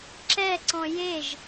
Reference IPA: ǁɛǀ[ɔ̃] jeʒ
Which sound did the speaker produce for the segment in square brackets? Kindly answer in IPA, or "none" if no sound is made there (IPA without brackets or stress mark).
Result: ɔ̃